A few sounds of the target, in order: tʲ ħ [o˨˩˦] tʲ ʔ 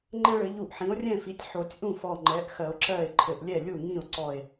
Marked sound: correct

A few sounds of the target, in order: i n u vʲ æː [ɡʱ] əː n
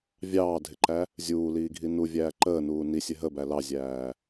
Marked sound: incorrect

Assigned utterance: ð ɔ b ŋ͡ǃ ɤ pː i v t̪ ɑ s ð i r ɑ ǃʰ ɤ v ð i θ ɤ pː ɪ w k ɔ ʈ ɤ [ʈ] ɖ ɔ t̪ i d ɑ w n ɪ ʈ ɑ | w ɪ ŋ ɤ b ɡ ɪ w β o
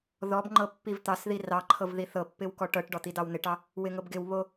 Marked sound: correct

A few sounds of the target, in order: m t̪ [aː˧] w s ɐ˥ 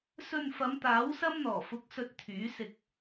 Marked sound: incorrect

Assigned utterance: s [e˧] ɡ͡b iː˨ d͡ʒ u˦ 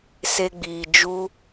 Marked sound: correct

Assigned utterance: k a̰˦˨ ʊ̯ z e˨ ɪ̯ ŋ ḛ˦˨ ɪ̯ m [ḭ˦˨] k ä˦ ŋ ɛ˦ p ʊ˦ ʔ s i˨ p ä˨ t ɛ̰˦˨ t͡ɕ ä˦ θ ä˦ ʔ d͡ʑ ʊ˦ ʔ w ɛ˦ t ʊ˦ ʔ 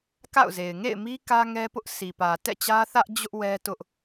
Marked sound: incorrect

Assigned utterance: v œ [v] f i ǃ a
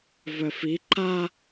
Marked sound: incorrect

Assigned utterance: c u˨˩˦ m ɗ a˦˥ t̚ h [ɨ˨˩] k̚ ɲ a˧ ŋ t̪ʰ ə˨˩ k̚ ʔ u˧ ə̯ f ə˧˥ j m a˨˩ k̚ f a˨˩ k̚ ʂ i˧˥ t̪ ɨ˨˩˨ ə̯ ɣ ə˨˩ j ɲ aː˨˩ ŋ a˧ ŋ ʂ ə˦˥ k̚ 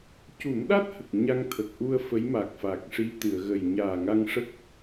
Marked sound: incorrect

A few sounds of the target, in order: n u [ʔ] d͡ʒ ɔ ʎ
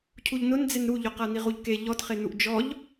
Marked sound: correct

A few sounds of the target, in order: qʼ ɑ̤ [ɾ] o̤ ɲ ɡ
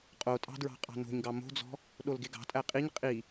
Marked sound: incorrect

